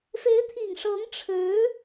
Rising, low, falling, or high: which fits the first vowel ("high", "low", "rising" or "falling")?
rising